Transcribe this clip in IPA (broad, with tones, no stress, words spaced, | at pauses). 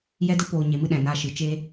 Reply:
jɛ˦də˦ poː˨ɲe˨mɨ˧ ɗɛ̃˨na˧ʃɨ˨t͡ʃe˦